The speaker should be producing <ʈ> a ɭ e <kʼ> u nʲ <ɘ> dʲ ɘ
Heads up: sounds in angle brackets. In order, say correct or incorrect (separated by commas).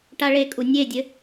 correct, correct, incorrect